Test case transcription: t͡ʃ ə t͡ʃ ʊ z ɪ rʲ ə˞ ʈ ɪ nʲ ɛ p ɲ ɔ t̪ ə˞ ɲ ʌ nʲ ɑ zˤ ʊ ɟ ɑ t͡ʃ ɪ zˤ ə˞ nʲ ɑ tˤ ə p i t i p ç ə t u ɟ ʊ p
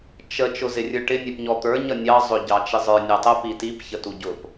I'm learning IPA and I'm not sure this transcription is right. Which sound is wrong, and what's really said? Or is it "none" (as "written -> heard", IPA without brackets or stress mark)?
none